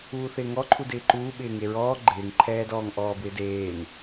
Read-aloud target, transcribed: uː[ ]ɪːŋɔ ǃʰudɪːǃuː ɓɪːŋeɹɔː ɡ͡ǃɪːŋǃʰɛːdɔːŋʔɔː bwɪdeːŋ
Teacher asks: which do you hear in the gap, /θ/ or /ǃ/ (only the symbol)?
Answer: θ